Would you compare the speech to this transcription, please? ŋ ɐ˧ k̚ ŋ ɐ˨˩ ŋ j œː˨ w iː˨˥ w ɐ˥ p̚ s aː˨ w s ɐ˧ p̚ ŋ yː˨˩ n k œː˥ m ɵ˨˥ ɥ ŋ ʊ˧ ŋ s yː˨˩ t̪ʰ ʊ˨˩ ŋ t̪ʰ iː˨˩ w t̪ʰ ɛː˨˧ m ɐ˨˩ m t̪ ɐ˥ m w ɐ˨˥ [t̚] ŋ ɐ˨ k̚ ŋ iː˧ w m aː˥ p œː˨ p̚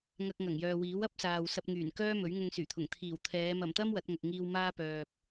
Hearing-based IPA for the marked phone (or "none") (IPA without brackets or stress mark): t̚